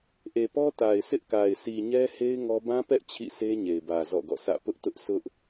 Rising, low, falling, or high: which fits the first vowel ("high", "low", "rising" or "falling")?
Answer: low